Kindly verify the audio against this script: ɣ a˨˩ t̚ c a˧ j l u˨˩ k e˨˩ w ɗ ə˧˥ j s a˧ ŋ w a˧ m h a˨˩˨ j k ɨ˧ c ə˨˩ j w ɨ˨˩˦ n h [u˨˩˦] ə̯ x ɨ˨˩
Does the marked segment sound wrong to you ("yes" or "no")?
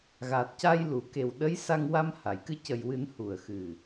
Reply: yes